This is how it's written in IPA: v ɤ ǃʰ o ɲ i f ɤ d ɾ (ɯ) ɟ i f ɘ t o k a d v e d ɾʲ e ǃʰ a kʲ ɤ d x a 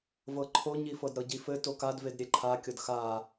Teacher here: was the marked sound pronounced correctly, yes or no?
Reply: no